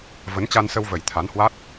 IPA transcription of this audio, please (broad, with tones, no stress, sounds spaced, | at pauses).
v ə˨˦ n t͡ɕ a˧ n s ə˧ w v ə˨˩ j t̪ʰ a˨˦ n h w a˦˥ t̚